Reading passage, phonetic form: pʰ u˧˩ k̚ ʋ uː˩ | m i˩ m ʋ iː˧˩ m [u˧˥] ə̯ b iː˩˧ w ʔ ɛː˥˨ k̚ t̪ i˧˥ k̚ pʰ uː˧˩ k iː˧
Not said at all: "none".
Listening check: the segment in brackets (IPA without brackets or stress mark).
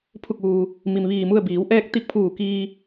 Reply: u˥˨